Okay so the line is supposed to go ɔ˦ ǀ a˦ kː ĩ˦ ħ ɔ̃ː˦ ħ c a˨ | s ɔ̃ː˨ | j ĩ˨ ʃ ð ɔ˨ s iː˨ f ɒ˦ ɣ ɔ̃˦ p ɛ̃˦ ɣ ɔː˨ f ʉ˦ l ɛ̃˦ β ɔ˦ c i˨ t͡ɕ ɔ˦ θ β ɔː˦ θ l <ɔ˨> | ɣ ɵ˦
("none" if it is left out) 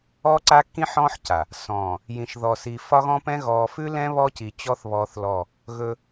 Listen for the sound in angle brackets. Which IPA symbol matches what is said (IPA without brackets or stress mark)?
ɔ˦˨